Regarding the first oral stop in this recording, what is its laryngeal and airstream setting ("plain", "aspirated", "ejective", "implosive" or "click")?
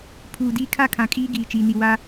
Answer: aspirated